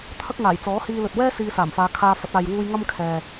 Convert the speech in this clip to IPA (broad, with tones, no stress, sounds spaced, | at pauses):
t̪ʰ ɐ˥ k̚ ŋ aː˨˩ j t͡s ɔː˨˥ h iː˧ l ɵ˨ t̚ w ɛː˥ s iː˧ s aː˨˩ m f aː˨˧ kʰ aː˧ f ɐ˨˥ t̚ aː˨ j w uː˧ j ŋ ɐ˥ m kʰ ɛː˨